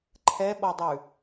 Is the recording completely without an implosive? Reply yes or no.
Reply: no